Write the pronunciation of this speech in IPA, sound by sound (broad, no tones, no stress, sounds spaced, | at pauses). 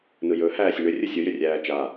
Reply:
n ɯ j ɵ h æː sʲ ə ɳ ʏ rʲ ɯ sʲ ɯ j ʏ rʲ æː t͡ʃ a